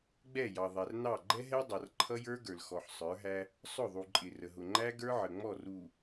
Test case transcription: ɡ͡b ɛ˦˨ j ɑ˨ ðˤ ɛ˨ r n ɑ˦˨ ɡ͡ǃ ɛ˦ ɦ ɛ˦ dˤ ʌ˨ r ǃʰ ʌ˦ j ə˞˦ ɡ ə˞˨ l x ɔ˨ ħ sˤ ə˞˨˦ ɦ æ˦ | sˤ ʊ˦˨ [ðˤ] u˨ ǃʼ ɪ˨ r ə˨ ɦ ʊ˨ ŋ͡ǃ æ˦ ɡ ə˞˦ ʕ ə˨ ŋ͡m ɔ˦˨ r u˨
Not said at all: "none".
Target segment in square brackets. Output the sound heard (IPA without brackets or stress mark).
ðˤ